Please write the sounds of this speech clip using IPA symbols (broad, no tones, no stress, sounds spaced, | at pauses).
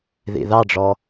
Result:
ð ḭ ð ɑ ɖ͡ʐ ɔ